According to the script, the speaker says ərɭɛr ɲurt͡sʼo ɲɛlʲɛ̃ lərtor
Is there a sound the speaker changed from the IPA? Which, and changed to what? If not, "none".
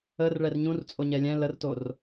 u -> ũ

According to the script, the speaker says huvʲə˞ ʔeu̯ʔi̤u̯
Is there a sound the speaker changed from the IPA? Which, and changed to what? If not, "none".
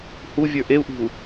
none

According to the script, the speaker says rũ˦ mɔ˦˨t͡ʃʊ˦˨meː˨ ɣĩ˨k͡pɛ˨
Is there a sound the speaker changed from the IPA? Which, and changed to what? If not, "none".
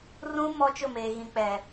ɔ˦˨ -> ɔ˦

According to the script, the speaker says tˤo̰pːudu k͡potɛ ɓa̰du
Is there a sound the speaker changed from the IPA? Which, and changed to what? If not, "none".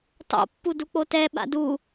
none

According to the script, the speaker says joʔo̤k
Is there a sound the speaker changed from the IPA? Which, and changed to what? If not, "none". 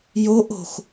k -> x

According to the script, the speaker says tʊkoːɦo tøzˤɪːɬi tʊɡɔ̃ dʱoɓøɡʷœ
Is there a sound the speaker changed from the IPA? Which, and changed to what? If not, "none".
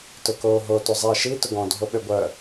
ɬ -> ʃ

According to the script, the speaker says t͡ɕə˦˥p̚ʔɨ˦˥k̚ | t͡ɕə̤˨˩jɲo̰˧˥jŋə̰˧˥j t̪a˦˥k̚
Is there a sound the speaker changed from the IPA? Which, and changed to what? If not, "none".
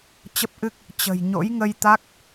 ə̰˧˥ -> ə˧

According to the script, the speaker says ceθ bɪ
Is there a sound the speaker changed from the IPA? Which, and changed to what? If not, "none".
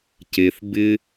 none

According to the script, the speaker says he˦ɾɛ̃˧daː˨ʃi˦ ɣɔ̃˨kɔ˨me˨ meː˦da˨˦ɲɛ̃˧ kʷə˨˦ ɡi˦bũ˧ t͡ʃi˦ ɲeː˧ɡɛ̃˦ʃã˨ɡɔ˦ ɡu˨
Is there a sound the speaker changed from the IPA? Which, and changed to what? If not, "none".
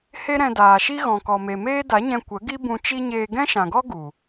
none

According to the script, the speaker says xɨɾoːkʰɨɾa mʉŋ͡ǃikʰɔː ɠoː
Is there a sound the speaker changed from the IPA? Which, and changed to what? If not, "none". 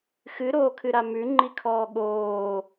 none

